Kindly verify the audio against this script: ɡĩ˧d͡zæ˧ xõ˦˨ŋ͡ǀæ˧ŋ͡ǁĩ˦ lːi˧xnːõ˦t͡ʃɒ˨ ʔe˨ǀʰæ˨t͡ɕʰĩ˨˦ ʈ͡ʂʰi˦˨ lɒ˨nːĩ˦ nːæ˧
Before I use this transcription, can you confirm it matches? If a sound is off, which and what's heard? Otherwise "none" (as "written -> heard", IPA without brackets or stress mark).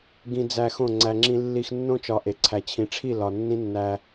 none